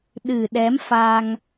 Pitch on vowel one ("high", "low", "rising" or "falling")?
low